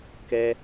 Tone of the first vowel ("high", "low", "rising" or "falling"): high